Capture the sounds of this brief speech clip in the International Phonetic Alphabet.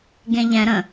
ɡẽʎɛ̃ ɾə̃

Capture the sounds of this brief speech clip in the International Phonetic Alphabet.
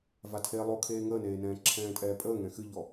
vatʰe lˠokʰeː ŋəːneːnɛ̃ː ǁʰɛ̃ːtʼɛːpʼəːŋɛ̃ xɨʎɔ

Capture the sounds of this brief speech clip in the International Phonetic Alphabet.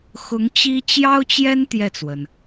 xʊ˧˥ŋt͡ɕi˥ t͡ɕjɑ˥ʊ̯t͡ɕjɛ˥n t̪jɛ˥˩t͡swə˩n

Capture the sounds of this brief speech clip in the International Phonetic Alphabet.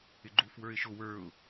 ɪɡ͡ǃuf wə˞ɪ̯ʃʊ wə˞ʊ̯

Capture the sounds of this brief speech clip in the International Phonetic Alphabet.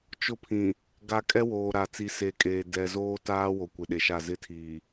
t͡ʃʊ˦pʰĩ˨ | ɡa˨kʼɛ˦ woː˨ɾa˨ t͡si˨se˨kʼeː˨ dɛ˨zoː˦ taː˦wo˨ kʷɪ˨ɗe˨ʃa˦˨ zɪ˦tʰiː˨

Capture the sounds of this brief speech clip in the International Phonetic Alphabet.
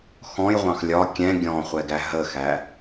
xɔ̃jʁʷɑ̃x lʲɒ kʲɛ̃ ɡʲɔ̃χʷɛɡæ ɦəxæ

